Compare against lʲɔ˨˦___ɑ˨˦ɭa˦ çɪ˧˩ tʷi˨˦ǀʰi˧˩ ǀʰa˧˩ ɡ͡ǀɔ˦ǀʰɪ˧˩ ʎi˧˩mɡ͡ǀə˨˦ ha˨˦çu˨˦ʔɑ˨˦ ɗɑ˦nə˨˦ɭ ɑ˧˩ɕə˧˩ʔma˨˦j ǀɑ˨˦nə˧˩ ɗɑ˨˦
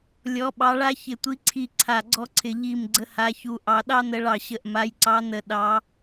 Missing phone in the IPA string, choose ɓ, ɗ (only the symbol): ɓ